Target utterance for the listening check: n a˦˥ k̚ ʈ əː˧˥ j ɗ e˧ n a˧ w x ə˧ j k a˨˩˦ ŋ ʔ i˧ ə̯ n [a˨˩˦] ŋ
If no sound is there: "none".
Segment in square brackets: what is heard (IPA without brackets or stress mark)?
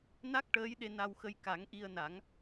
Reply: a˨˩˦